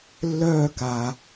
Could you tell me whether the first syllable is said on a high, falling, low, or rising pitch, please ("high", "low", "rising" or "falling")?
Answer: falling